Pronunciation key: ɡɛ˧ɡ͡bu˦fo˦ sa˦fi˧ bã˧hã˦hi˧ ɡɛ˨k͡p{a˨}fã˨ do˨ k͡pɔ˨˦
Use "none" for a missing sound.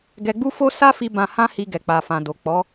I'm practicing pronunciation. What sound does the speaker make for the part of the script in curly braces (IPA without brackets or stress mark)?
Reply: a˨